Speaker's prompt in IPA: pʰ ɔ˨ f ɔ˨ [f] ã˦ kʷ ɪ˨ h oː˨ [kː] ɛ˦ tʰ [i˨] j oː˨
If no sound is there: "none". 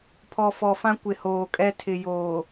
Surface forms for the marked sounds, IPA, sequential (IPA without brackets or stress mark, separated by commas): f, kʼ, ɪ˨